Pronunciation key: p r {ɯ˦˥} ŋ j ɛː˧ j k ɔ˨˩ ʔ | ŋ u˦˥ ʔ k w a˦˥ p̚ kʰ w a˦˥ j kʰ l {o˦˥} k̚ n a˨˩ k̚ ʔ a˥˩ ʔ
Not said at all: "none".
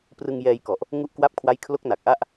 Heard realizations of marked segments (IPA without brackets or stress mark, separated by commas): ɯ˧, o˦˥